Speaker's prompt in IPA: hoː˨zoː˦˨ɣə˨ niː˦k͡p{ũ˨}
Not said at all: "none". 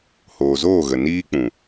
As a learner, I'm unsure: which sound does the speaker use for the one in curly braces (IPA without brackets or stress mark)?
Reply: ũ˨